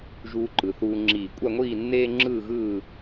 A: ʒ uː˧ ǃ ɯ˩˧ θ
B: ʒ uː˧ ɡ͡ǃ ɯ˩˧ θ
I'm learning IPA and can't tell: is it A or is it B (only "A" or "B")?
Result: A